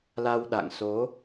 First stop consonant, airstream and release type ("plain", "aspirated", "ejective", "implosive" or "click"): implosive